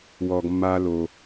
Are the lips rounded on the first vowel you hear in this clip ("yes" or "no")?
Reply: yes